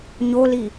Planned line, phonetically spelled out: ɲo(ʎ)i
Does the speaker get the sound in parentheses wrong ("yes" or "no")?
yes